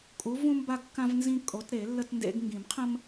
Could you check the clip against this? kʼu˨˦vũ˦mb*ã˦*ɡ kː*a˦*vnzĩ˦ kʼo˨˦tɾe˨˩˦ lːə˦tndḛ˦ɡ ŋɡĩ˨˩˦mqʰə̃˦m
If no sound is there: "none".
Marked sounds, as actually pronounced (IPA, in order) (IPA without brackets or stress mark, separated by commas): a˦, ã˦